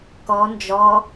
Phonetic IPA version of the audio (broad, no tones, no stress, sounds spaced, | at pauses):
k ɔ n d͡ʒ ɔ